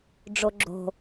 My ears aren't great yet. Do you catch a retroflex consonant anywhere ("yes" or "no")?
yes